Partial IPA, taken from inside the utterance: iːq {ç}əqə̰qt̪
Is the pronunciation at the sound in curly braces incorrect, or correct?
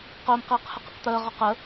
incorrect